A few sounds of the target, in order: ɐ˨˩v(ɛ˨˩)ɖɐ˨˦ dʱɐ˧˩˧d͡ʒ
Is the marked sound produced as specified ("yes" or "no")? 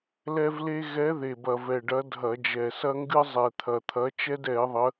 yes